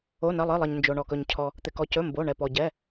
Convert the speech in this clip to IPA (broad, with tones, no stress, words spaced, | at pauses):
o˩˧˩nɐ˩˧˩lˠɪ˩˧˩lˠɐ˩ɲ nd͡ʒo˩ɳɔ˩kɵ˩ɲcʰɔ˩ | t̪ɪ˩kɔ˩cɵ˩˧˩ mbo˩˧˩ ɳɛ˩pɔ˩ ɟɛ˩˧˩